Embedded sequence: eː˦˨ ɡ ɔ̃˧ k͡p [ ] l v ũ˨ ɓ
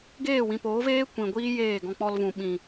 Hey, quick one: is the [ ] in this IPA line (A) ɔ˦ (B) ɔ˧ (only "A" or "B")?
B